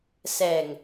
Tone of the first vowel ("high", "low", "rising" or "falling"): low